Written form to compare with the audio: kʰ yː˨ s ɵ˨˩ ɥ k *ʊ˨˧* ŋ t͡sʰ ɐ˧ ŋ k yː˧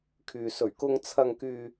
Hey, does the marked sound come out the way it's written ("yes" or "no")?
no